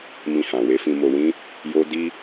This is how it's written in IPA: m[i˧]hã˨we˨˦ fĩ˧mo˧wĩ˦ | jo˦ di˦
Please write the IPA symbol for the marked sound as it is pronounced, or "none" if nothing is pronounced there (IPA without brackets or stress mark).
ĩ˧